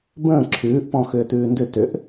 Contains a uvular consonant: no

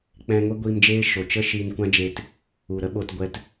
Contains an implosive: yes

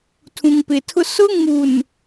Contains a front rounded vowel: no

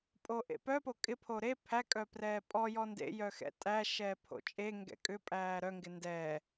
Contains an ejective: yes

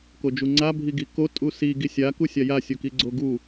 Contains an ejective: yes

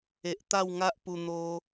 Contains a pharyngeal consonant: no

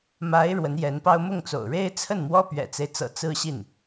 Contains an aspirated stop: yes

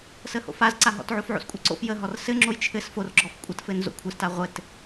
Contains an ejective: yes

